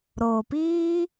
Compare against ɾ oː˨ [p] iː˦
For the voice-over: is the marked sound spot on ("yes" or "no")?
yes